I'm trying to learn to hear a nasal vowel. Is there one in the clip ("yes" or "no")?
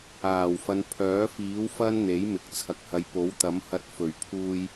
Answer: no